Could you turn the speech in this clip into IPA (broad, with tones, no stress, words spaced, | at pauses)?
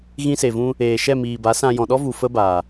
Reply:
ɣĩ˧se˨ vũ˧ | eː˨ʃɛ˦˨miː˨ba˨˦ sã˧ jɔ̃˨ɗɔ˦vu˨ fə˦baː˨